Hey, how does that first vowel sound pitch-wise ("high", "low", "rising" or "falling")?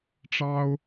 high